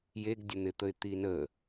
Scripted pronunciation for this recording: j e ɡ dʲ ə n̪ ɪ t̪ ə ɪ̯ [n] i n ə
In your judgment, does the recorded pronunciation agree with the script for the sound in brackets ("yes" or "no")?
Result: no